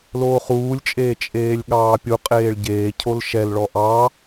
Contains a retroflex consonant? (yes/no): yes